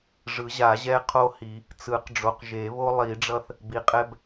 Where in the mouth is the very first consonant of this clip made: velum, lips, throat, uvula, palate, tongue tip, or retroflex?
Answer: retroflex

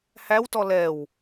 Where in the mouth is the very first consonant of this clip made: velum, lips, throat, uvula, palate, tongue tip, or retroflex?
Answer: throat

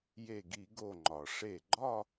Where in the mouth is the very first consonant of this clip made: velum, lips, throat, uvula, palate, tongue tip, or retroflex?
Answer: palate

